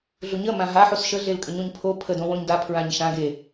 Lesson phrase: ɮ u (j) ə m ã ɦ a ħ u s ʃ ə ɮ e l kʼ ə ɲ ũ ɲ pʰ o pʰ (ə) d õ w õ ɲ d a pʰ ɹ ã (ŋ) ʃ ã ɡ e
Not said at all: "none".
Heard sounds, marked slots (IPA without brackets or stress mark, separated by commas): ɲ, ə, ɲ